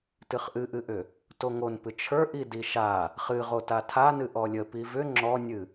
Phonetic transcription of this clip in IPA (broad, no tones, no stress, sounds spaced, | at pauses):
t ɨ χ ʔ ɨ ʔ ɨ ʔ ʏ | t o ŋ o n p ɨ t͡ʃʰ ə˞ ʔ i d i ʃ a | χ ɨ ʁ o t a tʰ a n ɨ ʔ ɔ lʲ ə p i v ʏ ŋ͡ǁ ɔ nʲ ɨ